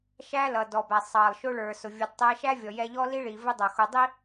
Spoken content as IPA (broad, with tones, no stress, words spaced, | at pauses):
ʃæ˥lʌ˩dɔ˩bæ˩ sˤɑ˩lˠʃʊ˧ ɭə˞˩ sʊ˩vʲu˩d tˤɛ˧ʃæ˥ vʲɔ˩jɛ˧ʎɔ˥li˥ ɭi˩vɪ˥ dˤʌ˩xʊ˧ dˤi˥